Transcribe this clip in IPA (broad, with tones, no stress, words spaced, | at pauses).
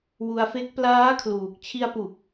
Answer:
wu˧a̯fe˦˥k̚ plaː˦˥ kʰluː˨˩k̚ t͡ɕʰi˧a̯pu˨˩k̚